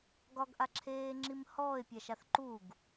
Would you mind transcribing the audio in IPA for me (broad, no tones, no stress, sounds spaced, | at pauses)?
ɡ ɒ ɡ ʔ a ǁʰ eː ŋ͡ǁ i m h ɔː ɪ̯ pʲ a ʃ a θ ǃ u ɡ